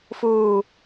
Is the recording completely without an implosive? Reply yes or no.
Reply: yes